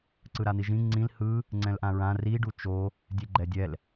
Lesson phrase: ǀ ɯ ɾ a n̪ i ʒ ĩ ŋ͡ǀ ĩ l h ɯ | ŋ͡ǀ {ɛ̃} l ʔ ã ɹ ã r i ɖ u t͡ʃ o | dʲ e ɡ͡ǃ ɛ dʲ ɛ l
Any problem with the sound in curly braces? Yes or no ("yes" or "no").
no